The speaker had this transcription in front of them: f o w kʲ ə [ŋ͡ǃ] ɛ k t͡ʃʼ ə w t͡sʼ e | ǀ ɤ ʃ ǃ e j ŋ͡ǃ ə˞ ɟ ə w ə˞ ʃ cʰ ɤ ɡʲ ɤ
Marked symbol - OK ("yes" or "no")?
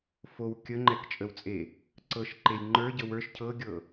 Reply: yes